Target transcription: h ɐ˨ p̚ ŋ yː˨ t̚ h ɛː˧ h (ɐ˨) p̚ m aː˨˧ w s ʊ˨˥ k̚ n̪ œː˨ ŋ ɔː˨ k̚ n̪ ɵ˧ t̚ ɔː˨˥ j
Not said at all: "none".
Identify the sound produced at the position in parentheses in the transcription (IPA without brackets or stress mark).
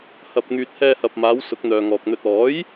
ɐ˨